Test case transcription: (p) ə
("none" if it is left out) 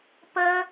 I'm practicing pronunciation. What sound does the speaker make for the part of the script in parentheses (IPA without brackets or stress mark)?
p